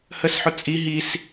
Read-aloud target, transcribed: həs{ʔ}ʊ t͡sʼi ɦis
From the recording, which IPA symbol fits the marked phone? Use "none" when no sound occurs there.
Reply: ħ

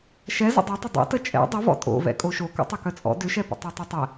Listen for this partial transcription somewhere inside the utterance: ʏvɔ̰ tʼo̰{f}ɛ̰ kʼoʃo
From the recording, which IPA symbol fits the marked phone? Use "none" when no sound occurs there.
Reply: v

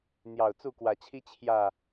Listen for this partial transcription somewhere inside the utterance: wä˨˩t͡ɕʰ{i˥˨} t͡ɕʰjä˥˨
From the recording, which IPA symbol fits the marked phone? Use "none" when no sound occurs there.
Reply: i˦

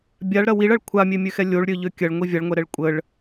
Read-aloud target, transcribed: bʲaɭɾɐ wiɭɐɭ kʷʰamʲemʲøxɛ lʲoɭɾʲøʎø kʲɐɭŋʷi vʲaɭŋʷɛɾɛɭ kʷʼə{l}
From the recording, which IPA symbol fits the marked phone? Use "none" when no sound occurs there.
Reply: ɭ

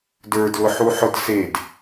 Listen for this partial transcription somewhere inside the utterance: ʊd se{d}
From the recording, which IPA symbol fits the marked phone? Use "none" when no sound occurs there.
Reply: d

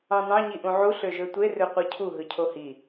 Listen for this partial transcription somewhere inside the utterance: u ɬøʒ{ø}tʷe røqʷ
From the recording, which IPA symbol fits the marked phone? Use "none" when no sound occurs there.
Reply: ø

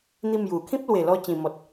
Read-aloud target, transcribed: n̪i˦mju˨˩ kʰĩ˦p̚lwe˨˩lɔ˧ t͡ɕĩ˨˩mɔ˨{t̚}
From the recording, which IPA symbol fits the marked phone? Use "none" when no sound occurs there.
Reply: t̚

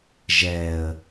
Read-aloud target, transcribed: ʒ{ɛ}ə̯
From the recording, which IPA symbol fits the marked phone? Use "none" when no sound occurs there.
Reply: ɛ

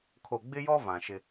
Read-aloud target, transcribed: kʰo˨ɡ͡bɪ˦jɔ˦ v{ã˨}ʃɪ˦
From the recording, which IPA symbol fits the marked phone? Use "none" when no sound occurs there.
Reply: ã˨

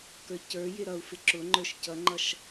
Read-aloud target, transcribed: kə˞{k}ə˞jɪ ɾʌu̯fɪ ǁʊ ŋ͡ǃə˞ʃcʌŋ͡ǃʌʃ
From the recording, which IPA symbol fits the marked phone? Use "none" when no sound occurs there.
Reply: c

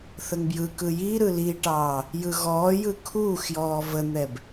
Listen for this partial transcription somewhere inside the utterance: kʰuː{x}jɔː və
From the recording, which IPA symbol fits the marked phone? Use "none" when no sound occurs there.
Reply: x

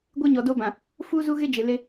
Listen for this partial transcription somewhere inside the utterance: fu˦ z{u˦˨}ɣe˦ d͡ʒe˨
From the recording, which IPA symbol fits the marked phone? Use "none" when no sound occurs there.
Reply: u˦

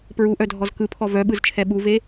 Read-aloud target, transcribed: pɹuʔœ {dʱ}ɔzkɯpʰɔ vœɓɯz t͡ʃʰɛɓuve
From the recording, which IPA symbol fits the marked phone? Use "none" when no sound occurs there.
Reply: dʱ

